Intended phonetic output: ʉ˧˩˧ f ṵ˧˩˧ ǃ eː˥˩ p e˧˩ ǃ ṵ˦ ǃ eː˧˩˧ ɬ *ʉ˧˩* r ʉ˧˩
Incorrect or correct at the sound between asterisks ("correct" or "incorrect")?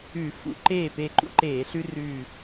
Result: incorrect